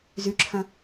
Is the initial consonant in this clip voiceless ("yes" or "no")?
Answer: no